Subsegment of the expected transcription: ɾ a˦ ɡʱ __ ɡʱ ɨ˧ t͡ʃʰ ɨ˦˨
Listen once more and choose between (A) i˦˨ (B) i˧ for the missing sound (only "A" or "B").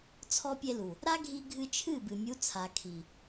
B